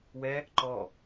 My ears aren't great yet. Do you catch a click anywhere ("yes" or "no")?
yes